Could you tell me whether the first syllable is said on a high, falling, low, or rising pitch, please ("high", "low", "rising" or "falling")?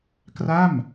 falling